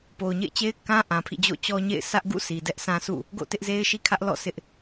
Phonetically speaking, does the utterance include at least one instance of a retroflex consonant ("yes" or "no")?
no